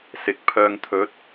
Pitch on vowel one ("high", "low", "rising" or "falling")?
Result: rising